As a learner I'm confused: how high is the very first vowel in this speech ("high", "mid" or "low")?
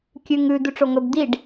high